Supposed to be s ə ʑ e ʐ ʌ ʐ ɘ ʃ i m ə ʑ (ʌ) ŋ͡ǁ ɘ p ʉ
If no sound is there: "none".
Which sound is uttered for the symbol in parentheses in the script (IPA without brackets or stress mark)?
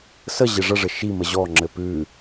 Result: ɔ